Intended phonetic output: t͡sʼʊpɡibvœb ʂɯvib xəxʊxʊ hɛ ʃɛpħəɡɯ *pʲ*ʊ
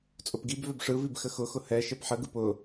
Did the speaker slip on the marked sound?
yes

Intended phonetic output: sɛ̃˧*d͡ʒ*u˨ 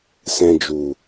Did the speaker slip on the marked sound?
no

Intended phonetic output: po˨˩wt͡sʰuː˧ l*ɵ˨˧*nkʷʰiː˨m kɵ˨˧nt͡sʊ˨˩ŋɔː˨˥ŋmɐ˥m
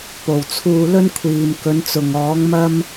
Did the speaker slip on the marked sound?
yes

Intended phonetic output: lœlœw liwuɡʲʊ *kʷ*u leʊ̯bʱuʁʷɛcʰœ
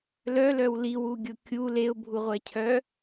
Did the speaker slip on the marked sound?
yes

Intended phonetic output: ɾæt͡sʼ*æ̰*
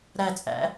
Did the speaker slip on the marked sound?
no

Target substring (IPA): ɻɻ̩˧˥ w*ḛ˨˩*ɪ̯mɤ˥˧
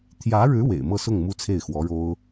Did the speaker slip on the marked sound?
no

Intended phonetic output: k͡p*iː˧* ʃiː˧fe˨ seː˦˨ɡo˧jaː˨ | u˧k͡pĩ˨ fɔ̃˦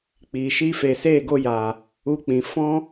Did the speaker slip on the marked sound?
yes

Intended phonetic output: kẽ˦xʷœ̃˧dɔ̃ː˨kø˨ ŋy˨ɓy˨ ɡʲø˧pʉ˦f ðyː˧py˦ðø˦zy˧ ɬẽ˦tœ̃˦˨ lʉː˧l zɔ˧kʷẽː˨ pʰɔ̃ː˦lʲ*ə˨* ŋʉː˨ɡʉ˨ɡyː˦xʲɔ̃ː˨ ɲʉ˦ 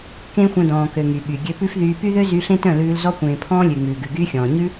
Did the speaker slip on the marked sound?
yes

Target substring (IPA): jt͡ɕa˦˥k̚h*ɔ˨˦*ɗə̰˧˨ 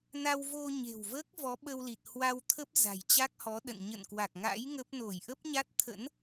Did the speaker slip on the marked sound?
no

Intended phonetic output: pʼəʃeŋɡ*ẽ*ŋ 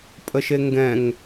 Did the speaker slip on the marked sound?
yes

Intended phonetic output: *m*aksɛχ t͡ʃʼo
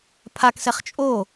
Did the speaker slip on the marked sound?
yes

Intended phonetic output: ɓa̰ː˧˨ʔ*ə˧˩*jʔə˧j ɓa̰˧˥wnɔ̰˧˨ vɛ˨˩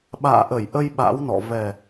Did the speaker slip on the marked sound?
no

